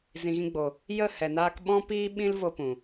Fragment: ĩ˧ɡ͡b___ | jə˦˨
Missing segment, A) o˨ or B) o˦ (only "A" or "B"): A